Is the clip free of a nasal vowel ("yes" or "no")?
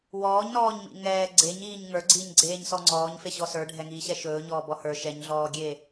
yes